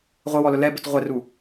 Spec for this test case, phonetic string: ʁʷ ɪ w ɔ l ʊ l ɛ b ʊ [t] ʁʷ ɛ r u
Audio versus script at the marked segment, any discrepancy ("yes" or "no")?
no